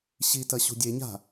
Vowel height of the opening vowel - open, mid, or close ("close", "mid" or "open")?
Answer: close